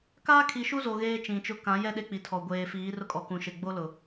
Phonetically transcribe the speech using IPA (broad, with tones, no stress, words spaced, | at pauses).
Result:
kaː˦kʰi˨ʃu˦zo˨ ɣeː˦t͡ʃĩ˨t͡ʃʊ˦ kã˨˦jɛ˦ ɗe˦k͡pi˨tʰɔ˨ ɡʷeː˨fiː˨˦rʊ˦kʼɔ˨ kũ˨ʃe˨ ɡ͡bo˦lʊ˨